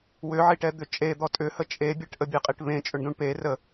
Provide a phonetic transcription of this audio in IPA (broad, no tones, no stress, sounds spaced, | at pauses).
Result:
w ʏ ʕ i ʈ ɛ d̪ ʏ t͡ʃʼ e d̪ ɔ tʼ ʏ h ə t͡ʃʼ e bʲ e ʈ ʔ ə bʲ e qʼ i ʈ β ẽ t͡ʃʼ ʏ ɳ d ũ ɳ p e r ə